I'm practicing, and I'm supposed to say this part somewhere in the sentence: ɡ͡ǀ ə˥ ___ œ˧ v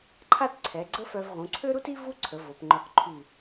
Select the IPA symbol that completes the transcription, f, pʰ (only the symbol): f